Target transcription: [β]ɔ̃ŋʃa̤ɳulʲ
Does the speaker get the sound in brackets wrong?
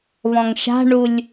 no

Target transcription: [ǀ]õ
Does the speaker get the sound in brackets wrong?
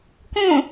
yes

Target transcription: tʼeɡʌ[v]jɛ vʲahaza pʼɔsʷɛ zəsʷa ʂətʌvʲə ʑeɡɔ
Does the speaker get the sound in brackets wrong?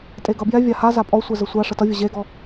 yes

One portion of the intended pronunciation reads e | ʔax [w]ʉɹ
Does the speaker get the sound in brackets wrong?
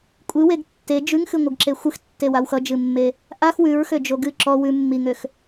no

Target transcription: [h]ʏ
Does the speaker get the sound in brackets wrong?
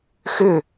yes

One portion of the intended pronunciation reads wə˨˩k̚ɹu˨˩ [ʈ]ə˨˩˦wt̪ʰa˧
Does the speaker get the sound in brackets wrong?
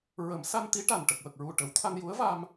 no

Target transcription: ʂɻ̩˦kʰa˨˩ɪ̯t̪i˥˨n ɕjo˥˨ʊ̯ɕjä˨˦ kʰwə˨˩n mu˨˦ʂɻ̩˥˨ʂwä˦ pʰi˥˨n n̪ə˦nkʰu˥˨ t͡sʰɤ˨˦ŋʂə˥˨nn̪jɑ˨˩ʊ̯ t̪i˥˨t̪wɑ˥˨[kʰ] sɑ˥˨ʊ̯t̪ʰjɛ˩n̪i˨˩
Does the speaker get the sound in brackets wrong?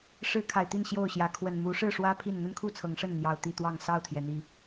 yes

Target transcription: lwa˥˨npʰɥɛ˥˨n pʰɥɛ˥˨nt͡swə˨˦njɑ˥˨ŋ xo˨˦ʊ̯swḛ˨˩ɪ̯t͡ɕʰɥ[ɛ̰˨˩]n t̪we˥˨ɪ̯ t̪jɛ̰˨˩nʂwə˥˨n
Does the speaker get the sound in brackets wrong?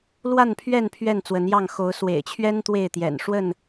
yes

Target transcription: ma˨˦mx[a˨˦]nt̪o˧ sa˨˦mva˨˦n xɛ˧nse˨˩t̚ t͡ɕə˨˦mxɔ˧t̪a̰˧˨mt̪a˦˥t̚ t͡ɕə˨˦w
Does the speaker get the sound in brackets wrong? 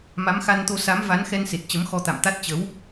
yes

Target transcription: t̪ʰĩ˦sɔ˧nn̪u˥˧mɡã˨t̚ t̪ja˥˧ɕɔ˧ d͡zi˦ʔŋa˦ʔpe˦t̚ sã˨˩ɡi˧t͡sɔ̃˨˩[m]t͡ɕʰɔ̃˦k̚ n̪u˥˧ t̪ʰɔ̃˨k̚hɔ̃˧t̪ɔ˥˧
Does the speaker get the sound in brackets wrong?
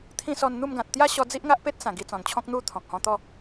yes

